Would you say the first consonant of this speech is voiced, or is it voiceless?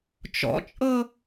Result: voiceless